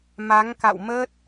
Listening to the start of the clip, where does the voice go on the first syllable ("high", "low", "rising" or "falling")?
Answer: rising